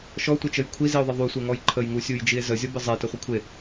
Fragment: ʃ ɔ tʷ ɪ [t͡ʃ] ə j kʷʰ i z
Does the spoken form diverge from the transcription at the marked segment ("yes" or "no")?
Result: no